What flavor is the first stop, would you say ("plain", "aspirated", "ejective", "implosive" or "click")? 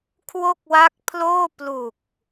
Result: aspirated